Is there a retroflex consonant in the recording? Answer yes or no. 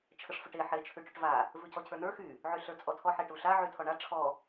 yes